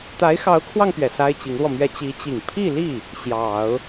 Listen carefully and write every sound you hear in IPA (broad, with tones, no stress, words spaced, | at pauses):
t̪a˧˥ɪ̯xɑ˧˥ʊ̯kʰwɑ˧ŋpɥɛ˩ sa˥ɪ̯t͡ɕi˧˥ŋlwɔ˧mɥɛ˥ t͡ɕi˧˥t͡ɕi˨˩ŋ pʰi˥˧li˥˩ | ɕjɑ˨˩˦ʊ̯